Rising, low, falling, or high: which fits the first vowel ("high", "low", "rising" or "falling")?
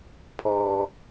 low